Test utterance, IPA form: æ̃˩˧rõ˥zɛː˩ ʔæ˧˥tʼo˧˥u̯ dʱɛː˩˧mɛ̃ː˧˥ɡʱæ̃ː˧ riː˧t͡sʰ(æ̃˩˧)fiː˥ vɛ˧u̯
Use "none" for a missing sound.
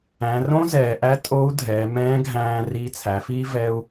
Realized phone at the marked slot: æ˩˧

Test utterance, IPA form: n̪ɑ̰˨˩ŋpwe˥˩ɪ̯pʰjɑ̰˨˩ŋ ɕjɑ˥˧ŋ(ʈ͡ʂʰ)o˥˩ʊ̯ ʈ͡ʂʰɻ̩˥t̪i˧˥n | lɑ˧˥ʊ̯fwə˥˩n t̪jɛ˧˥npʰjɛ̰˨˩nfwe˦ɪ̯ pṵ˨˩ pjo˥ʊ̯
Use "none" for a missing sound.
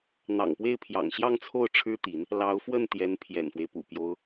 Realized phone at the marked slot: t͡sʰ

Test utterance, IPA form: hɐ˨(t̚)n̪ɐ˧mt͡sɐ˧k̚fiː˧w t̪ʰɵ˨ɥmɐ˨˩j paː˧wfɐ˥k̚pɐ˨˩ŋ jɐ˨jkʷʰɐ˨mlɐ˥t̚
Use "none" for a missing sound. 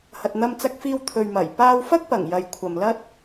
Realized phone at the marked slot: t̚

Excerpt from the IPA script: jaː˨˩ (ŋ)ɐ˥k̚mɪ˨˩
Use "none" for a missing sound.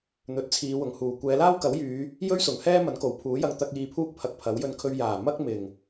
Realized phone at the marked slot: m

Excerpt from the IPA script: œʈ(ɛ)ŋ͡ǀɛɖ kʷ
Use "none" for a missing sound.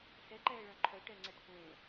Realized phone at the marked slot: ɛ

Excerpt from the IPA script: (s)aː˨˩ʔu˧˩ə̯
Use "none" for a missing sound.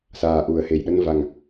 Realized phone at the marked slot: s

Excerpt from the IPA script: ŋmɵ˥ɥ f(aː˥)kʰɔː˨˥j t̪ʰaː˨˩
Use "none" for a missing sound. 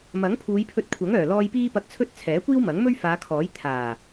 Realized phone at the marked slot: aː˨˧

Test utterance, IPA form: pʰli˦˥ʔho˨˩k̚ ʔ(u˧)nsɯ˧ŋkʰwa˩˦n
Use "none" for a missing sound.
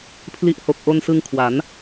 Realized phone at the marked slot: o˧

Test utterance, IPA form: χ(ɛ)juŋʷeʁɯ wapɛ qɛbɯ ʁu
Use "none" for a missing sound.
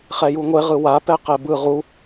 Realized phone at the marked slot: ɛ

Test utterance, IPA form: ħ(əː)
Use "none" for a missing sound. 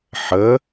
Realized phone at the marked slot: əː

